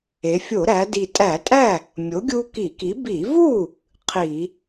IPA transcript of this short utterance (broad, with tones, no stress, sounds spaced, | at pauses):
e˩˧ fʲ o˧˩˧ ɾ æ˩˧ d i˨˩ tʼ æ˧˩˧ tʼ æ˥˩ | mʲ o˨˥ ɡʲ u˦ k i˧˩˧ k i˨˥ b i˧˩˧ v u˥˩ | qʰ i˧˩˧